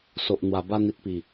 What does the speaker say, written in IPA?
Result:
so˨ʔn̪wa˨˩ba˥˧ n̪i˨t̚pi˨˩

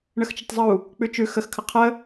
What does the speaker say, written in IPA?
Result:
ɳəxt͡ʃətˤzˤu | k͡pʉt͡ʃʉ xəxkʰə qʰə

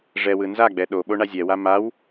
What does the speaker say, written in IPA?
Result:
ʐɛwɯ nzaɡ͡bɛ ɗoɓoɳa zʲɛwa maw

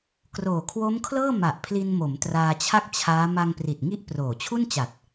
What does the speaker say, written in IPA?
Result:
kroː˨˩kʰwo˦˥mkʰlɤː˥˩ ma˨˩ʔpʰli˧nmo˩˦m traː˧t͡ɕʰa˥˩k̚t͡ɕʰaː˦˥ ma˧ŋpri˨˩t̚ŋi˦˥ʔ proː˨˩t͡ɕʰu˥˩nt͡ɕa˨˩t̚

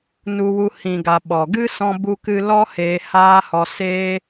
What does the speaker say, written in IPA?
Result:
nu˧wu˧ hĩ˨ɡa˨ ɓɔ˨ɡɨ˦ sɔ̃˧bu˧kɨ˧lɔ˦ heː˧haː˦hɔ˧ seː˦

